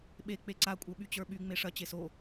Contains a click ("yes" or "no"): yes